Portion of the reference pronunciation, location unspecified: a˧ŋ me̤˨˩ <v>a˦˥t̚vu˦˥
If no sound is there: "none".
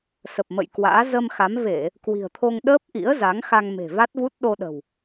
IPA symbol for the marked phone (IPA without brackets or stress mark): v